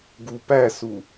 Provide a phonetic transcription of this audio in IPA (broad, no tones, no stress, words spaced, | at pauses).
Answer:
ɡupæsu